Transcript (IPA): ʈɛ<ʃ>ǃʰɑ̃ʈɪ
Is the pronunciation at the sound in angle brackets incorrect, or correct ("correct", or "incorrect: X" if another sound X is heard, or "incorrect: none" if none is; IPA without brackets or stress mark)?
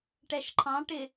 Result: correct